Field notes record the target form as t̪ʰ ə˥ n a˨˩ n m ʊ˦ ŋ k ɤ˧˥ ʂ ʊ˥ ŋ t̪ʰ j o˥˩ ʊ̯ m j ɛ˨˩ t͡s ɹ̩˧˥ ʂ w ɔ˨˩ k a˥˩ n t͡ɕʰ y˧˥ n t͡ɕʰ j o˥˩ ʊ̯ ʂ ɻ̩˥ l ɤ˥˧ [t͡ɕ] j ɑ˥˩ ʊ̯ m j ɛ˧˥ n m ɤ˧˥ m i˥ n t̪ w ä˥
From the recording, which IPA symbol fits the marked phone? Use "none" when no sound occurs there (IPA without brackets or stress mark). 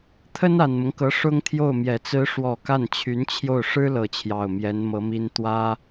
t͡ɕʰ